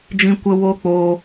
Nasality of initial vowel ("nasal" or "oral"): nasal